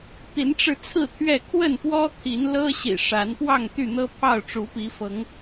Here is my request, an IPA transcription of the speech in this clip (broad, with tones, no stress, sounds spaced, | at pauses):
t̪ i˨˦ n ʈ͡ʂ ɻ̩˧ t͡sʰ ɹ̩˥˨ t̪ʰ ɥ ɛ˥˨ kʰ w ə˥˨ n p w ɔ˦ t̪ʰ i˨˦ n l ɤ˦ ɕ ḭ˨˩ ʂ a˨˦ n p w ɑ˥˨ ŋ t̪ y˥˨ n̪ ɤ˦ pʰ ɑ˥˨ ʊ̯ ʈ͡ʂ u˨˦ p i˨˦ f ɤ˨˦ ŋ